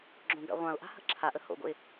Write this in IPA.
ɡ͡ǁ õ ɡ a̰ ʁʷ ã ʊ̯ ʔ a̤ h ə̤ ǁʰ a ʔ ə h o̰ ɡ o̰ ɪ̯

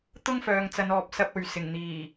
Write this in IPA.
t̪ ʊ˥ ŋ f œː˨ ŋ t͡s ɐ˨˧ n ɔː˨ p̚ s ɐ˧ p̚ ɵ˨ ɥ s ɪ˨˩ ŋ n̪ iː˨˩

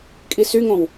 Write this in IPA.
kʼ i s y ŋ õ w

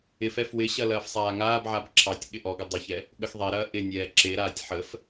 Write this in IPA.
ɪ f ɛ f w ɪ ɕ ɐ l ɐː f sˤ aː ŋ aː b ʕ a b ǁʰ ɑ tʲ ɠ ɪ ʔ ɔ ɡ ə dˤ ə ç ɛ | ɠ ə x ðˤ e ɾ ɐː ʔ ɪ nʲ ɛː ǁ e ɾ aː tʲ ħ ə f

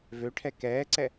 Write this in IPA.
v ø ʈʰ ɛ k ɛː ǀ ɛ

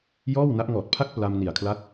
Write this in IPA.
j ɔː˥˩ w n a˦˥ ʔ ŋ ɔː˨˩ t̚ pʰ a˦˥ k̚ p l a˧ m n i˨˩ a̯ kʰ l a˦˥ t̚

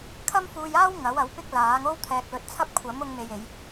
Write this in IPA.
kʰ ɐ˥ m f uː˧ j aː˥ w ŋ ɐ˨˥ w ɐ˨˥ w p ɪ˥ k̚ l aː˨˥ ŋ o˥ w t̪ʰ ɛː˧ k̚ l ɵ˧ t̚ t͡sʰ ɐ˥ p̚ kʷʰ ɐ˨˥ m ʊ˧ ŋ m e˧ j e˨˧ j

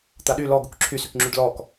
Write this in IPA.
t̪ a ɗ y l ɔ ɡ u k ǁʰ y s y k ŋ͡ǁ y ɖ l ɔ k

